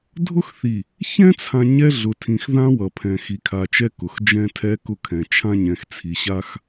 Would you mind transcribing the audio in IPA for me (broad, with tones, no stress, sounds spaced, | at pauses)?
dʱ ʊ˦ x θ i˨ | ç ɛ̃˦ t͡sʰ ã˨ ɲ ɛ˦ ɮ ʊ˨ tʰ ĩ˨ x ð ã˦ w ʌ˨ pʰ ɛ̃˨ x i˨ kʰ a˨ t͡ʃ ɛ˦ k ʊ˨ x d͡ʒ ɛ̃˦ tʰ ɛ˦ k ʊ˦˨ kʰ ɛ̃˨ t͡ʃʰ ã˦ ɲ ɛ̃˨ x t͡sʰ i˨ ɕ a˦ x